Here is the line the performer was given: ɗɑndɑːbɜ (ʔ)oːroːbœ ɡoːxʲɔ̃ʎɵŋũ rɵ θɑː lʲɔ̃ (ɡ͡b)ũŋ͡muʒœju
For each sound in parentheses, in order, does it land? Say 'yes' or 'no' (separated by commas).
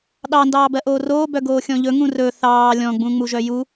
yes, yes